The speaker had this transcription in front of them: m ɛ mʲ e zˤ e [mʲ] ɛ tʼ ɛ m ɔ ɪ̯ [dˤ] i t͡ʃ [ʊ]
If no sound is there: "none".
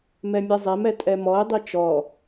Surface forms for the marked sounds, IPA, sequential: m, dˤ, ɔ

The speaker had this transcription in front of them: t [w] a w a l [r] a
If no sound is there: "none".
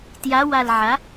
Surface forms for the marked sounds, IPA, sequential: j, ʕ

